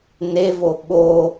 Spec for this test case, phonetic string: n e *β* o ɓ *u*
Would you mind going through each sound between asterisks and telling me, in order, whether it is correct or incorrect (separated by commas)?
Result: incorrect, incorrect